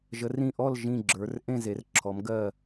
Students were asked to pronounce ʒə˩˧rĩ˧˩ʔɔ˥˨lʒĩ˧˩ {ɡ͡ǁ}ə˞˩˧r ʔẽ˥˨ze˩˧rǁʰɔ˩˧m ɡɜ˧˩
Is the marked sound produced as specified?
yes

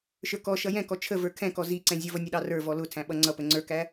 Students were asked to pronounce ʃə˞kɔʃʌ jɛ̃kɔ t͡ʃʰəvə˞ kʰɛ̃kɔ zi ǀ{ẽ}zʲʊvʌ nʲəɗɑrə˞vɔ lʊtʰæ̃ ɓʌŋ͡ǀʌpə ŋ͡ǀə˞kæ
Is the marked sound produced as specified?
no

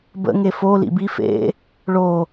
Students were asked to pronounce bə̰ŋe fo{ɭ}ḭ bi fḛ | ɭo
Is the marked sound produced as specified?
no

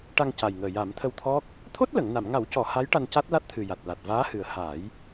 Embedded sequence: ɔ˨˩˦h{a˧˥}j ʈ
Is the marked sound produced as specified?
yes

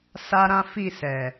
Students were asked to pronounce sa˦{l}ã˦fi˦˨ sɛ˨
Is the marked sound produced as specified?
no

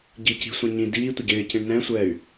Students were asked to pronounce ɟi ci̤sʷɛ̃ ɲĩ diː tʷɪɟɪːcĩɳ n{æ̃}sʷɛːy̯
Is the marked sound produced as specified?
no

